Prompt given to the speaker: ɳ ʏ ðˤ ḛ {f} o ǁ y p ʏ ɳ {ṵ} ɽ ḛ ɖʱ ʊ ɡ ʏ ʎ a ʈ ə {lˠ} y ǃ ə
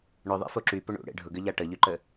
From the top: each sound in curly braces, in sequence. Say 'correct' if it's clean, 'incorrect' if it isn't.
correct, correct, incorrect

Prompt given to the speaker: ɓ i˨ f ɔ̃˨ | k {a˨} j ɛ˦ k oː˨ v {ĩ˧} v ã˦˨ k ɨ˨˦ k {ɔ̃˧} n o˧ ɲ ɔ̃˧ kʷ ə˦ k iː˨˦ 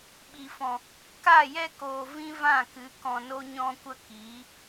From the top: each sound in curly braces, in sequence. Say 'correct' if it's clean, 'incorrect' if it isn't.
incorrect, incorrect, incorrect

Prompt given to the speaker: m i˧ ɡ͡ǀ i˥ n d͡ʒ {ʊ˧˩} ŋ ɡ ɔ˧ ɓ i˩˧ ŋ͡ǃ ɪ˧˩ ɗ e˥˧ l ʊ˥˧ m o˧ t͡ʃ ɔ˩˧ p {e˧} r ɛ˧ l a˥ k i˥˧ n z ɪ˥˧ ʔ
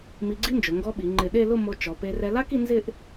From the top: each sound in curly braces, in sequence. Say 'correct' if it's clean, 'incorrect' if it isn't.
incorrect, correct

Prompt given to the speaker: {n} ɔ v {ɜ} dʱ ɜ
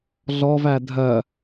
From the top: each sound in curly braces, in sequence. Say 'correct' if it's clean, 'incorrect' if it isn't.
incorrect, incorrect

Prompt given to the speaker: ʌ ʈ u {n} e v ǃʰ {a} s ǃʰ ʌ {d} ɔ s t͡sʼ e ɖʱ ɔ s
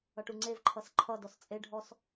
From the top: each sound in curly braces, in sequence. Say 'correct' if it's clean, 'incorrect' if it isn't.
incorrect, incorrect, correct

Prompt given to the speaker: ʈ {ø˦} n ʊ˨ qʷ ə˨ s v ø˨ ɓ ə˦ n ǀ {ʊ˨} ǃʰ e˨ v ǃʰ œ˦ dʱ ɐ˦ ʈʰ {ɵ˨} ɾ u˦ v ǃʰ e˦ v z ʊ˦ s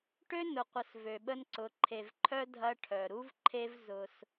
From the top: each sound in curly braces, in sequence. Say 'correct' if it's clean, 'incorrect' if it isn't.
correct, incorrect, incorrect

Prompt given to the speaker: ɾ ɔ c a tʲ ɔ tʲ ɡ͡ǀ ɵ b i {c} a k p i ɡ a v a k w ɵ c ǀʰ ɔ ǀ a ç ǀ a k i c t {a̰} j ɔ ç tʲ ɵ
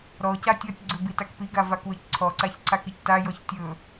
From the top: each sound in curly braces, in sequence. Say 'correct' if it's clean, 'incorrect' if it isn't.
incorrect, incorrect

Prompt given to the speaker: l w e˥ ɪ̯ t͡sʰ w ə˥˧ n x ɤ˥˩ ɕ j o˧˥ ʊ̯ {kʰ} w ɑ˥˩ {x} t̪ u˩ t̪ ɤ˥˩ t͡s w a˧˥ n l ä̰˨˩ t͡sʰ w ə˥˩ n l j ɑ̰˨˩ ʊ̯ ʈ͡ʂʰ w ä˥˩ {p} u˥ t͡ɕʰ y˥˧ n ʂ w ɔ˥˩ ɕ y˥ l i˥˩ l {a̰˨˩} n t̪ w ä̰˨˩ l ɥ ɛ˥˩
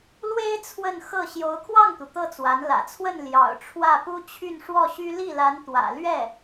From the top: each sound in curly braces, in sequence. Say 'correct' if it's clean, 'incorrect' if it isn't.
correct, incorrect, correct, incorrect

